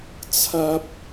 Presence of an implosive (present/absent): absent